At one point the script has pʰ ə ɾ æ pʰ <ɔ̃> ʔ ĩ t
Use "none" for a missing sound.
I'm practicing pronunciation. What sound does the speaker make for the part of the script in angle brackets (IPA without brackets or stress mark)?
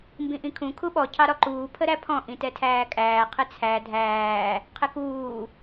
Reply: ɔ̃